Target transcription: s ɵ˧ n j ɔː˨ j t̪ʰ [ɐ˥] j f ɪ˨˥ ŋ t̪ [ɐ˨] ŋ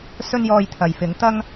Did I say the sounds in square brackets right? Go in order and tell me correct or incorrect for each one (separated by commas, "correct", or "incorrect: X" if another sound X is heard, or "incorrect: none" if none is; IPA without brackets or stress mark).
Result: incorrect: ɐ˨, incorrect: ɐ˥